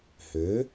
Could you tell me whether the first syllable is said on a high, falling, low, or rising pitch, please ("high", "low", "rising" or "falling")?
rising